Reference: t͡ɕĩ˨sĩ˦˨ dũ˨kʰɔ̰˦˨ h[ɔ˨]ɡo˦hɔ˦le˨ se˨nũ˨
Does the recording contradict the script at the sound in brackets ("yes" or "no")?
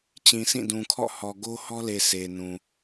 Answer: no